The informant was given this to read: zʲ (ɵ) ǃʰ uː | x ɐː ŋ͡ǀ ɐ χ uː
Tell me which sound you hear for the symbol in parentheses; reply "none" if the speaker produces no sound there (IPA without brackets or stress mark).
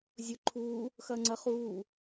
ɵ